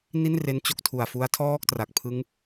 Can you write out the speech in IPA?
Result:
n i˥˩ n r e˦˥ n t͡ɕ o˦˥ k̚ tʰ u˨˩ a̯ f u˦˥ a̯ tʰ ɔː˥˩ k̚ t r a˨˩ k̚ pʰ ɯ˦˥ ŋ

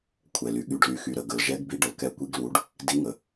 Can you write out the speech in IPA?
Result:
kʷʰ ɛ˩ l y˩ ɠ y˩ ɖ l y˩ x y˩ ɾ ə˩ ɡ ə˩ l ʒ ɛ˨˦ ɡ b i˨˦ ɖ ə˩ l k ɛ˨˦ kʷ i˨˦ ɡ l u˨˦ ɖ | d i˨˦ ŋ ə˩

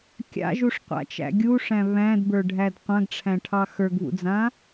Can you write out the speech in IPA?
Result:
kʲ a̰ ʒ u ʂ qʷ a̰ t͡ʃ æ̰ ɡʲ u ʂ æ̃ β æ̃ d b ə˞ ɖʱ æ d qʷ ã ɡ ʈ͡ʂʰ æ̃ ʈʰ ɑ x ə˞ ɡ β ṵ d͡z ã

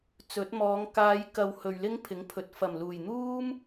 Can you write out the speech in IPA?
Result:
t͡s ɵ˨˥ t̚ m ɔː˨˧ ŋ k aː˨˧ j k ɐ˨ w h ɵ˨ ɥ l ɪ˥ ŋ pʰ ɪ˨˥ ŋ pʰ ɵ˨ t̚ f ɐ˨˩ m l uː˨˩ j n̪ uː˥ m

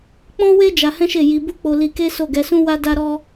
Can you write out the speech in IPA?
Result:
k͡p ɔ̃˦ w e˦ d͡ʒ a˧ h ɛ̃˦ ʃ e˦˨ j i˧ b u˦ k͡p o˧ l i˧ k e˦ s o˦˨ ɡ ɛ˨˦ s ũ˦ w a˦ d a˦ ɾ ɔ˦

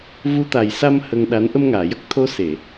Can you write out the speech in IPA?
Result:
v u˧˥ t̪ a˨˩ j s a˧ m h ə˧ ŋ ɗ a˧˥ n ʔ ə˧ m ŋ aː˨˩˨ j ə˦˥ k̚ t̪ʰ o˧˥ s e˨˩˨

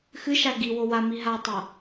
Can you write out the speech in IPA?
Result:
x ɨ ʃ a ɡ i w o w a m i ɦ a tˤ ɐ

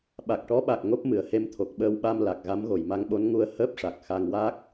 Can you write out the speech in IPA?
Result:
ɓ a˨˩ k̚ ʈ ɔ˧˥ ɓ a˨˩ k̚ ŋ o˦˥ p̚ m ɨ˨˩˨ ə̯ h e˧ m t̪ʰ o˨˩ k̚ ɓ əː˧ w ɓ a˧ m l a˨˩ k̚ ɣ a˧˥ m ɣ o˨˩˨ j m a˧ ŋ ɓ o˧˥ n ŋ u˧ ə̯ h əː˦˥ p̚ ʂ a˨˩ k̚ x a˧ ŋ w a˦˥ k̚

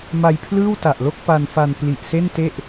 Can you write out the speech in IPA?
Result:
m a˧ j pʰ l ɯː˥˩ w t a˨˩ ʔ l o˥˩ k̚ p a˧ n f a˧ n p l i˨˩ ʔ s e˥˩ n t e˥˩ ʔ

